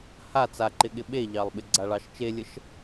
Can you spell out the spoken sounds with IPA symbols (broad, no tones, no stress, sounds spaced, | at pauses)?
h a t͡s a ǃ ɪ ɠ ɪ ɓ e ʎ ɑ lˠ ɓ ɪ ɡ͡ǀ a ɭ ɑ ʃ t͡ʃ e lʲ ə ʃ